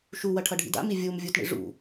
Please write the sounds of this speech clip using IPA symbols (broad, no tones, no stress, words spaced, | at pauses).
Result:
ʃuwɐ ʈʰɐɖʱḭda̰mi vʲum vʲutɳḭ ʐṵ